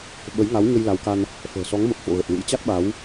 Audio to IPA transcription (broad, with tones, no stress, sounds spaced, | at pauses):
ɓ ə˨˦ j ŋ a˨˦ w ɲ ə˧ j l a˨˦ w k a˧ n | f ə̤ː˨˩ s ɔ˨˦ ŋ m ə˨˩ p̚ f o̰˧˨ ɣ ə˨˩ t̚ l ṵ˧˥ j t͡ɕ a˦˥ t̚ ɓ a˨˦ w